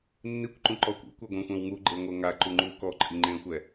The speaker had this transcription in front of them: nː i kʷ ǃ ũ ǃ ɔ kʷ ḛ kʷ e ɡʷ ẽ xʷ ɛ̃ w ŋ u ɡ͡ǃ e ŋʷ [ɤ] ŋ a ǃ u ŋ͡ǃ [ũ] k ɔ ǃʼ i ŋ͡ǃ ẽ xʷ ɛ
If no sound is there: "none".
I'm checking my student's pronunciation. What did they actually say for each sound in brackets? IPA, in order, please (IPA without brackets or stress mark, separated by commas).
ɤ, u